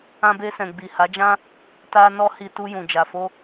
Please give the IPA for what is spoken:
ã˧ b e˧ s ɛ̃˨ ɡ͡b i˨ h a˨˦ d͡ʒ ã˦ | t a˧ n ɔ˦ h i˧ t u˧ j ũ˨ d͡ʒ a˨ f o˧

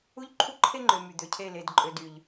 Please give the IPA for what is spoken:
u˦ ʎ ǃʰ u˦ ǃʰ e˦ ŋ͡ǃ ø˨ m y˨ d̪ ø˨ cʰ e˦˨ l e˨ d ǃʼ ø˨ d y˨ ʎ

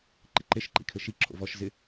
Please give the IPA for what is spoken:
ǃ ɪ ǃ e ʃ ǃ ḭ kʰ ɘ ʃ i ǁʰ o̰ v ɔ ʃ z ɪ

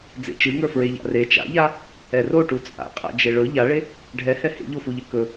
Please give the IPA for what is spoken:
d͡z ḛ t͡ʃ ɨ ŋ ə˞ f ɹ e ʎ a̰ r e t͡ʃ a̰ ʎ a | ɛ r o ʈ u t͡sʼ a̰ qʼ a̰ d͡ʒ e ɭ ɵ ʎ a ɭ e | ɖʱ ɛ h ɛ h ḛ ʎ o f u ʎ ɘ k ɵ

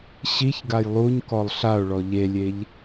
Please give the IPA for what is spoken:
ɕ i ç ɡ a j lˠ u ɲ k ɔ lˠ ɬ a o̯ ɭ ɔ ʎ e lʲ e ʎ

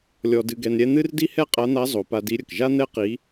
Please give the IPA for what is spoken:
lʲ ɔ˧ d ɨ˧ ɡ ɛ˧ n ɾʲ ɛ˥ n̪ ɨ˥ r d i˥ h ɛ˥ qʼ a˧˥ n̪ a˧˥ zˤ o˩˧ p a˧ d i˧˥ ɾʲ ə˩ k ʒ a˥ n̪ ɛ˥ q i˧˥

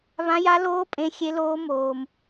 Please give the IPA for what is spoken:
β ã˦ j a˦ l oː˦ pʼ ẽ˦ xʲ e˦ l oː˦ m oː˦ m

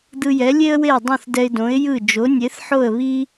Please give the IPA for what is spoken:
d̪ ɯ˧ j ɛ˩˥ lʲ e˥ ə̯ w e˥˩ ʊ̯ dˤ õ˥˩ θ d ɛ˧ ɪ̯ d õ˩˥ ɪ̯ j ɯ˥˩ d͡ʒ o˩˥ nʲ e˩˥ θ ħ o˥˩ ə̯ β i˥

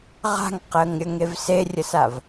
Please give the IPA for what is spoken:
ʁ a̤ ŋ q əː ŋ ɾʲ ə ŋ e v s e rʲ ə s a v

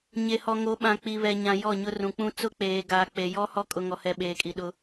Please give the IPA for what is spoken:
ɲ e˨ h ɔ˨ ŋ o˨˦ ɓ ã˨ k͡p i˨ β ɛ˨ ɲ ã˨ j ɔ˦˨ ɲ ʊ˦ r ũ˨ k͡p ũ˦ t͡s ʊ˦ k͡p eː˨ ɡ aː˨ k͡p e˨ j ɔ˦ h ɔ˦ kʼ ʊ˨ ŋ ɔ˨ h ɛ˨ ɓ eː˨ kʼ i˨ ɗ ʊ˦

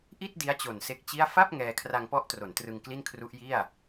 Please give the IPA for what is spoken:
ʔ i˥˩ t̚ d i˦˥ a̯ t͡ɕ o˨˩ n s e˦˥ k̚ t͡ɕ i˥˩ a̯ f a˥˩ p̚ ŋ ɛː˧ kʰ r a˧ ŋ p ɔ˦˥ ʔ t r o˩˦ n t r ɯ˧ ŋ k l i˥˩ n kʰ r u˦˥ ʔ j i˥˩ a̯

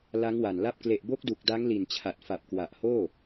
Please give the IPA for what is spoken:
l a˦˥ ŋ w a˨˩ n l a˥˩ p̚ k l e˨˩ ʔ b o˦˥ k̚ d u˨˩ k̚ d a˦˥ ŋ l i˨˩ n t͡ɕʰ a˨˩ t̚ f a˨˩ p̚ k w a˨˩ ʔ h oː˥˩

